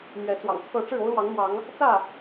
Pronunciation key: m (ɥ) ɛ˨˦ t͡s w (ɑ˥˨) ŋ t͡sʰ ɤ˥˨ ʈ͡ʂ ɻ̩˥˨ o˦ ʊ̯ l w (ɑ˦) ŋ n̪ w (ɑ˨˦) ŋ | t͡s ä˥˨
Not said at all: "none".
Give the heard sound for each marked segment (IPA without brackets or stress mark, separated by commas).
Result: ɥ, ɑ̰˨˩, ɑ˨˦, ɑ˨˦